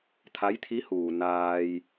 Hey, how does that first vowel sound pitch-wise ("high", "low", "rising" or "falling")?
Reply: rising